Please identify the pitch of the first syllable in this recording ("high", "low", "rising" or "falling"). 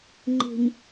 low